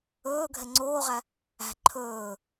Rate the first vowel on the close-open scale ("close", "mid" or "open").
mid